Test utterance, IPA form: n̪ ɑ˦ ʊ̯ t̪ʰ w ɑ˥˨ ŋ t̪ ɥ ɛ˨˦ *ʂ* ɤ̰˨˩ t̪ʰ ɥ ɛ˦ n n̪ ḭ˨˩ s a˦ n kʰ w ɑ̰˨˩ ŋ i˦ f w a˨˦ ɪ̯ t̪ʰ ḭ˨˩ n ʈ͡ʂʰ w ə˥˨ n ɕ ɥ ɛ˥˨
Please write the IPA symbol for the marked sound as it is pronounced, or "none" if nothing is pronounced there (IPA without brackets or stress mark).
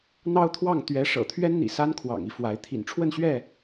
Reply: ʂ